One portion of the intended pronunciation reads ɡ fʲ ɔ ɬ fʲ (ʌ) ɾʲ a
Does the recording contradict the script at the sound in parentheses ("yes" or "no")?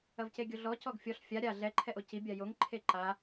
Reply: yes